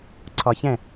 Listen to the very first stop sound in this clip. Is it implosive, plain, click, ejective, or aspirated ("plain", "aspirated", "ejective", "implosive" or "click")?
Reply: click